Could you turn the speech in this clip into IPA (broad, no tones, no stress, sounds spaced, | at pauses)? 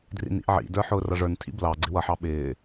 d r ḭ n ḭ ʔ ʕ ḭ d ə˞ ħ ʊː r ʌ ʐ ə˞ n tʰ ḭ b l ɑ ɡ͡ǀ ɪ w ʌ ħ ɑ ɓ ɪː